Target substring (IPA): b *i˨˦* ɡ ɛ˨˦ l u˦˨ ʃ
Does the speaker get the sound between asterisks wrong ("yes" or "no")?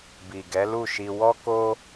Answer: yes